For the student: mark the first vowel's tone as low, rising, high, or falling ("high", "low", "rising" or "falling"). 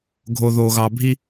low